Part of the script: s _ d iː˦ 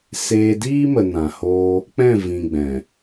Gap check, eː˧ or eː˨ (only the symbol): eː˧